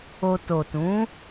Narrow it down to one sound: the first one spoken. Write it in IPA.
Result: o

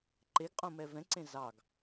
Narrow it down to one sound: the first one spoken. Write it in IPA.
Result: ǃ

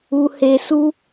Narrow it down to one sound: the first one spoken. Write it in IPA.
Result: u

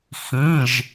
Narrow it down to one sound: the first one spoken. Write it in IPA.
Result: x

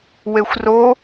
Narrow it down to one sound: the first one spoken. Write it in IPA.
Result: w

